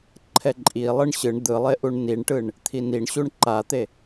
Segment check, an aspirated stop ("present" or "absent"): present